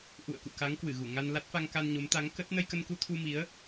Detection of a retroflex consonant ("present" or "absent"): absent